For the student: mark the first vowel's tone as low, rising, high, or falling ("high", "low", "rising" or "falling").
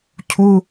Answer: high